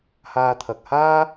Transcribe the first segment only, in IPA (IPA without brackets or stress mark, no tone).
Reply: h